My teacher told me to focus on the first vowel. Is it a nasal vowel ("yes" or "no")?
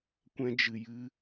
yes